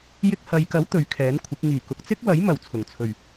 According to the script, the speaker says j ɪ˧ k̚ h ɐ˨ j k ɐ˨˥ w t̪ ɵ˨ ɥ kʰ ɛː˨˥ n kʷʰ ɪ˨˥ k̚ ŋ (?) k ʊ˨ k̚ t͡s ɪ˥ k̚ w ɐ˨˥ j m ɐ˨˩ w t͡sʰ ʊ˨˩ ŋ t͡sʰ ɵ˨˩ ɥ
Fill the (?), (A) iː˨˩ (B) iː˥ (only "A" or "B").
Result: A